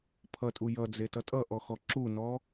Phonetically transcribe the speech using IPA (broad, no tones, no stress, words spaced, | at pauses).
pʰʌtʼu jʌd͡zetʌ tʼʌʔɔxɔ ǁunɔ